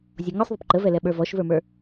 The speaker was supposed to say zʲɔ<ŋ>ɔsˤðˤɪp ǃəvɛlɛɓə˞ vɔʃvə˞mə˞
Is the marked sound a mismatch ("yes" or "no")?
no